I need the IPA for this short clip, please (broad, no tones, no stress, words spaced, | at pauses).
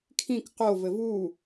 kʰĩk qovɘ vu